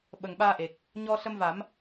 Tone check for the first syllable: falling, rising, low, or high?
low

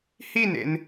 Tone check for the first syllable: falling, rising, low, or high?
falling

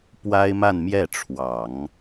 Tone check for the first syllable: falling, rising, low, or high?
high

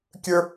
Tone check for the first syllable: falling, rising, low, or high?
high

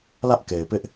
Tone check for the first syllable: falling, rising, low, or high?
high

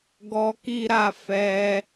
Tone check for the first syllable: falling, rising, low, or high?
high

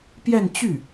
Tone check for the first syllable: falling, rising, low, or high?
falling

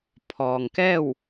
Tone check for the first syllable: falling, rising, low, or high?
low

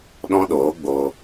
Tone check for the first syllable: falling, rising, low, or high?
high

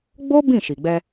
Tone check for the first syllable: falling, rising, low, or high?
high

